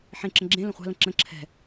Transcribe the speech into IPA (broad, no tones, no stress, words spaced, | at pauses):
ħẽǁə̃ ɡ͡ǁẽ lə̃χʷa̤lə̃ ǁə̃ ǁʰɛ̤